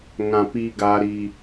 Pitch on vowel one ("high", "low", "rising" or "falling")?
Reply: low